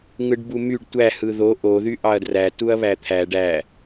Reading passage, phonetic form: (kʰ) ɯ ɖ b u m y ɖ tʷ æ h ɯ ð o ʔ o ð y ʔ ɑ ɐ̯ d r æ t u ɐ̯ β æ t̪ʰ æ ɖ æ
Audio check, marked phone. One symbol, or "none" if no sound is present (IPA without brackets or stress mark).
ŋ